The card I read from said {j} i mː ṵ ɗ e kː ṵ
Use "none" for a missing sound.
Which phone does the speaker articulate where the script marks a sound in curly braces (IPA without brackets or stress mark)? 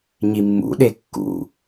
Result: ɲ